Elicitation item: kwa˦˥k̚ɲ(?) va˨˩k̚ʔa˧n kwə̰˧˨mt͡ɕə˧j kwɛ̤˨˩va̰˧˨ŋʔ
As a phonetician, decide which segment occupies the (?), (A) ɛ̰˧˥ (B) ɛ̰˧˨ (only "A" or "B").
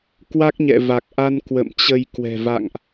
B